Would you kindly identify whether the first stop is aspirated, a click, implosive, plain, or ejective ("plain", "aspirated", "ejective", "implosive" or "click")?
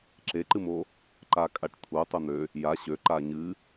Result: click